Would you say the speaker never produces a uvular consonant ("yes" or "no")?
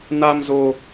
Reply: yes